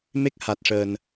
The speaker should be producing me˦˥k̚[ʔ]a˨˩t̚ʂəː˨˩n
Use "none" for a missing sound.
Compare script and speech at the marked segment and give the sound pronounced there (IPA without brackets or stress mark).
h